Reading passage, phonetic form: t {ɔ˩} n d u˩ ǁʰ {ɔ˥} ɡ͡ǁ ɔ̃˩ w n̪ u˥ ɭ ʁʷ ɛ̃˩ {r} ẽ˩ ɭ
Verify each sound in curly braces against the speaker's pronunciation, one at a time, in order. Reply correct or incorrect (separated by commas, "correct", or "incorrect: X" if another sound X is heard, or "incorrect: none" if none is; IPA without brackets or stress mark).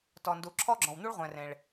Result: correct, correct, correct